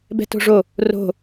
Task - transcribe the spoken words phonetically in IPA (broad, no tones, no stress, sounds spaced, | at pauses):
b ɛ̤ t o̤ ʐ o | r o̤